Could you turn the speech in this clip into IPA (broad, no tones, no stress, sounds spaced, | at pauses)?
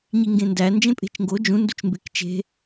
ɲ i ŋ ɡ ẽ n d æ n d͡ʒ ẽ pʼ e̤ t͡ʃ ŋ ɡ o d͡ʒ ũ n d u t͡ʃ m b e k t͡ʃ e̤